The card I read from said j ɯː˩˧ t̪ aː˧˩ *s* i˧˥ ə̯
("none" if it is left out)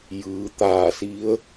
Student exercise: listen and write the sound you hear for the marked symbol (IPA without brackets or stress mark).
s